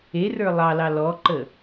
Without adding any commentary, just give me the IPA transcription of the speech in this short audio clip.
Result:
e r ə˞ lˠ ɑ l ɑ l ɔ ǃ ə

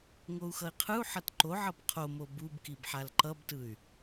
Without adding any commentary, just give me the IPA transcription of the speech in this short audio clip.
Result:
ŋ o u̯ x ʌ i̯ qʰ ɯ u̯ ħ ʌ t ǃ o ʕ ʌ b qʰ o m o b u b k i b ħ a l ǃ ʌ b t ɯ y̯

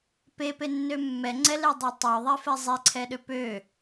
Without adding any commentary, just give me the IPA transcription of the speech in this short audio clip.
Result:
p e p e nː ø mː ɛ ŋ͡ǀ ɛ l e dˤ o tˤ ø ðˤ e f ɛ zˤ e ǀʰ ɛ ɗ ø p ø

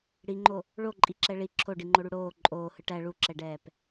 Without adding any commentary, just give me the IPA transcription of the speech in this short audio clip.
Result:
ɽ i ŋ͡ǃ o | ɭ o ǃʼ i ǁ ɛ ɭ i ǁʰ o ɖ i ŋ͡ǃ o ɽ u ɽ oː ǃʼ oː h ɯ ʈ æ ɭ u ǁ ɛ ɖ ɛː p

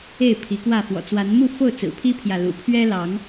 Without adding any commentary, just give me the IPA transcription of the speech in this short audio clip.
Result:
e˥˨ ɪ̯ pʰ i˨˦ k w ä˥˨ f w ɔ̰˨˩ t͡s w a˨˦ n m u˥˨ f o˥˨ ʊ̯ t͡s ɹ̩˨˩ pʰ i˦ pʰ j ä˨ l ṵ˨˩ pʰ ɥ ɛ˦ l ɑ˨˦ ŋ

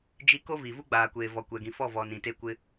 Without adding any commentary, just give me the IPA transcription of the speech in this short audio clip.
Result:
d͡ʒ i˦ k o˦ v i˨ v u˦ ɡ͡b aː˨ kʷ eː˨ v ɔ˨ kʷ ɛ˨ ɡ ĩ˨ f ɔ˦˨ v ɔ˨ n ĩ˨ t e˦ kʷ ɪ˦

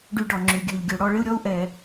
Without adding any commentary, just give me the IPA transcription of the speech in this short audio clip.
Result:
ɖ y˦ ɖ ɔ˧ ŋ͡ǁ y˧ ɡʲ ø˧ ʎ ɡʲ ø˧ ɽ ɔ˦ ɭ ɪ˦ u̯ ɾʲ ɔ˦ u̯ ʔ ɛ˧

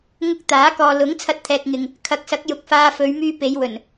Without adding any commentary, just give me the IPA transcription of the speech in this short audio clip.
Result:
ŋ ʊ˧ k̚ t̪ aː˨˥ k ɔː˨ l ʊ˨˥ ŋ t͡sʰ ɐ˧ t̚ t̪ʰ ɛː˨ k̚ ŋ ɪ˨ ŋ | kʰ ɐ˨˥ k̚ s ɐ˨˥ k̚ j ʊ˨ k̚ f aː˧ f ɵ˨˧ ɥ m yː˧ p e˨˧ j w ɵ˨˩ n

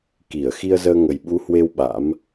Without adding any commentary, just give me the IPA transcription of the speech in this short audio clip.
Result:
k i˧˩ ə̯ x i˧ ə̯ z əː˧ ŋ ə˨˩ j ɓ u˨˦ h w e˧ w ɓ a̰˧˥ m

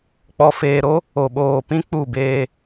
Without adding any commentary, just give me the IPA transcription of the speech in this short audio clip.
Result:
k͡p ɔ˨ f eː˨ ɾ o˦ | o˨ ɓ oː˨ p ĩ˦ k͡p u˦˨ b eː˦

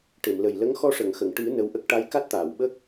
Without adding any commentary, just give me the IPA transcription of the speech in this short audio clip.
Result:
ʈ e˨˩˨ m l ə˨˩ j l ə˧˥ ŋ x ɔ˧ ʂ ə˨˩˨ ŋ x ə˨˩˨ ŋ ʈ ɨ˨˩˦ n ə˧ w ʔ ə˦˥ k̚ ʈ a˧˥ j k a˦˥ t̚ t̪ aː˨˩˨ w ɓ ə˦˥ k̚

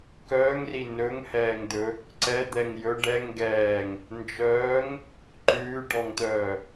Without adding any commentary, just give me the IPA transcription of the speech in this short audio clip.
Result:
k œː ŋ r i n ɵ ŋ h ɛː ŋ d̪ ɵ | ǀ ɛ d̪ ɛ ŋ j ɵ ɖ ɛ ŋ ɡ ɛː ŋ | n d͡ʒ œː ŋ | ǃ ʉː ɖ ɔ ŋ t̪ œː

